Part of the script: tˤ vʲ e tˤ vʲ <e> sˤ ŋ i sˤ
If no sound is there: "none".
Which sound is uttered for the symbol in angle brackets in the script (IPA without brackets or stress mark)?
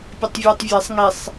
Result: e